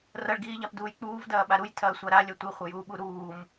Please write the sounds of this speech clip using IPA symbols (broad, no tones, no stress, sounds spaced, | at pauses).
r ɐ ɭ ɡ iː ʎ a p d uː j k͡p uː v d ɐː ɓ a ɾ u j tʰ ɐː sʷ a ɾ a lʲ ɐ tʷ i χʷ ɐ j uː ɓ u ɾ uː m